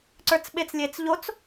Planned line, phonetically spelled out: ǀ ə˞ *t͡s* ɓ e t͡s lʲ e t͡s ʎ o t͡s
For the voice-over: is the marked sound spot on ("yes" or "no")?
yes